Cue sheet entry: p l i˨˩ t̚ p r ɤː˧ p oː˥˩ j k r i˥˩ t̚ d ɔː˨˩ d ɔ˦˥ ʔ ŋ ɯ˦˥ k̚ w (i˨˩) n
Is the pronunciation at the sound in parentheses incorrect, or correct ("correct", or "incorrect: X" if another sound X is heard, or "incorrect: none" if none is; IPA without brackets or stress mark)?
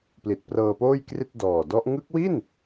incorrect: i˥˩